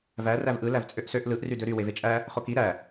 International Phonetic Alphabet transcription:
v æ r æ v ʔ ɯ l æ v t͡sʼ ø ʔ s ø ʔ l ɯ ʔ r y d ø ɾ y w e v e t͡ʃʼ æ | χ o k i ɾ æ

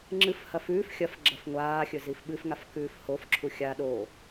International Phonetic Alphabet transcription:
ŋ͡ǁ ɨ f h ɐ f ʉː f xʲ ɐ f ɡ͡ǁ ɐ f ŋʷ aː xʲ ɵ z i f ɓ ɨ f ŋ a f k ʉː f h o f ǁʰ u xʲ a ɗ o

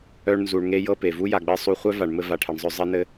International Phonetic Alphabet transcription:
œ˧ ɳ n z u˨ ɳ ŋ e˧ j ɤ˦ p e˨ v u˦ j a˨ ɡ͡b ɘ˧ sˤ u˧ χʷ œ˦ v a˨ ɳ m ɘ˧ v a˨ ʈʰ e˨ ɳ zˤ œ˧ zˤ ɘ˧ n ɘ˧

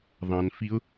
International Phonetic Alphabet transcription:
ðˤ ɑ̃ n f i ʊ̯

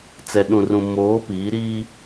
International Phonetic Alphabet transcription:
t͡s ɛ˨ ɗ ũ˨ r ũ˨ m oː˨˦ p iː˨˦ ɾ iː˦

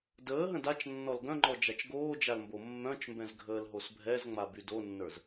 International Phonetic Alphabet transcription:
d əː ɦ ə̃ d a t͡ʃ nː ɔ l ɡ œ̃ ŋ͡ǃ ɔ d͡ʒ a t͡ʃ ɡ oː d͡ʒ a l m b o mː œ̃ t͡ʃ m b ɛ̃ z ɡʱ əː l ɦ o s bʱ ɛ z ŋ͡m a b y d o nː ə˞ z

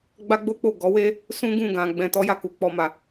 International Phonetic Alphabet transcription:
ɡ͡b a˦ ɡ͡b o˦ k͡p o˦˨ ɡ ɔ˨˦ w e˦ | s ũ˦ ɡ ũ˦˨ ɡ ã˧ ɡ͡b ɛ̃˨ t ɔ˧ j a˨ k u˧ k͡p ɔ˦ m a˧

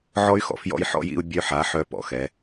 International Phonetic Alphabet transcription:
ʕ ɔ˦ y̯ x ɔ̰˨ f j ɔ̰˦ j ħ ɔ̰˦ j ḭ˦ u̯ bʲ œ˦ ħ a˨˦ ħ œ˦ p ɔ̰˨ x ɛ˨˦

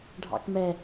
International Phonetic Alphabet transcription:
ɖʱ ɑ̰ k m ɛ

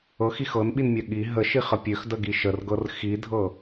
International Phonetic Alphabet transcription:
ɤ x i x ɤ n ɓ i n mʲ œ ɠ i ɦ ə ʃ i χ ə pʲ ø x d ə ɡ i ʃ ə r ɡ ɤ r x i dʱ ɤ

